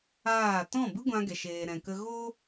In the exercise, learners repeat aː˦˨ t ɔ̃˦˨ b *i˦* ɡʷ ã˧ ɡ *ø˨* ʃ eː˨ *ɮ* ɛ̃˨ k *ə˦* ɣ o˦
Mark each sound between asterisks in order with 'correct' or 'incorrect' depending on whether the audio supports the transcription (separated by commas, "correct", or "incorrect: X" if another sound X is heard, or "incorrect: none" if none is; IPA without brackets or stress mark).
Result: incorrect: ɨ˦, incorrect: ɛ˨, incorrect: ɾ, incorrect: ə˧